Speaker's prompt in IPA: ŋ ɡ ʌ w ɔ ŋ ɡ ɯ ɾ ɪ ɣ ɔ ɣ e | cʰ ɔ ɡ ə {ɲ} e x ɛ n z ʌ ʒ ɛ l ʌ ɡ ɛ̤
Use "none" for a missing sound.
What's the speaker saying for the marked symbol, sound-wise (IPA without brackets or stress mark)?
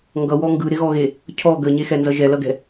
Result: ɲ